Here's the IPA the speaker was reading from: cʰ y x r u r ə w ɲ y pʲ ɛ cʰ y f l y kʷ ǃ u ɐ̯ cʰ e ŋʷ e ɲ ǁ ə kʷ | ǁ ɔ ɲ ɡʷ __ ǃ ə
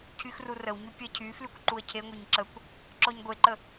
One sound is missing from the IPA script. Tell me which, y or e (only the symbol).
e